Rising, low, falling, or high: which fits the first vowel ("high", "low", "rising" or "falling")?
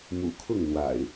low